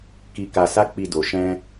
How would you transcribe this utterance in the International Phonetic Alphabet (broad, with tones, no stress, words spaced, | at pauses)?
ki˧ka˧sa˦ k͡pi˧do˨ ʃɛ̃˧